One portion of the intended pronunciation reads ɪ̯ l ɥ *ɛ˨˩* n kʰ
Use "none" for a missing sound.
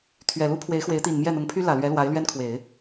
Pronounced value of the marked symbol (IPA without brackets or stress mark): ɛ˥